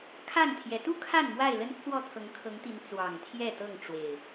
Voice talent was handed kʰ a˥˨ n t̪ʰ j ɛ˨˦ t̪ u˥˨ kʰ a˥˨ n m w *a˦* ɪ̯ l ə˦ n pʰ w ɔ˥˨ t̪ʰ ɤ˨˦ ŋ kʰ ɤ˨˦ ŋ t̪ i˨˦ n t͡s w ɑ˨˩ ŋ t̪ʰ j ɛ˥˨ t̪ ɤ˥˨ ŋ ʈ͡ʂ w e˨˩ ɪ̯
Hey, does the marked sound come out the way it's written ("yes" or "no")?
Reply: no